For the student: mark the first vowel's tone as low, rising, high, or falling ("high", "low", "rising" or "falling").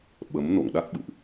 rising